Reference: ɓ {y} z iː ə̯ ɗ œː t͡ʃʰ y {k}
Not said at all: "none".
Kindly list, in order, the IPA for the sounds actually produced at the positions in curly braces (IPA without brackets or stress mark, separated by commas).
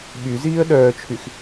y, x